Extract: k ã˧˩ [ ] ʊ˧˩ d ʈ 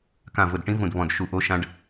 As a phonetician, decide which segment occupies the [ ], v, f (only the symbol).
v